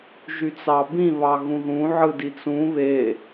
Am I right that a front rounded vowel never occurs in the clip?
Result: no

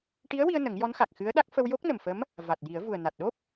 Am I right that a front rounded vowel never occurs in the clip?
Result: yes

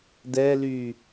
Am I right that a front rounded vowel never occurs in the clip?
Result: no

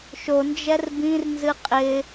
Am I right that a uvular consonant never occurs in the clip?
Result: no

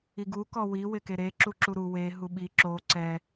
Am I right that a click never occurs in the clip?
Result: no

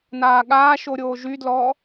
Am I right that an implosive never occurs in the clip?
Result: no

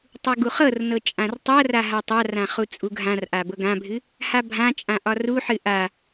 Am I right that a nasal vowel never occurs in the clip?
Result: no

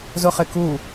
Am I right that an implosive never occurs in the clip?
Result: yes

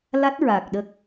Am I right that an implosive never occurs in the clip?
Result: no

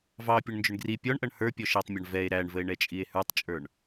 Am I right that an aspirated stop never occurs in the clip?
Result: yes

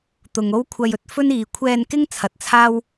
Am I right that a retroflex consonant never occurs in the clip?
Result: yes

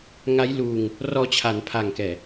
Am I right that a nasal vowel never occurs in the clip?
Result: yes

